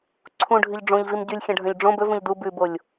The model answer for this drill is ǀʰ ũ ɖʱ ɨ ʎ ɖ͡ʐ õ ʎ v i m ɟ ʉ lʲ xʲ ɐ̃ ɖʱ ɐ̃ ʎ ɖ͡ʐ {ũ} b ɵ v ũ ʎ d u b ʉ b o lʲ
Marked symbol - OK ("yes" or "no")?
no